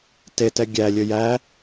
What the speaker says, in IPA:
tetɛ ɡʲælʲɵ jæ

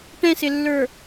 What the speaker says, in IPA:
ʈɛ̃sɪlːə˞

